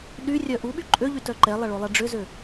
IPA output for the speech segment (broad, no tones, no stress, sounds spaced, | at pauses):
ɗ y rʲ œ ʔ u ɓ y ǃʼ ø ʎ y t œ ǃ ɛ lˠ ɐ ɭ o lˠ ɛ ɖ͡ʐ ʏ z ø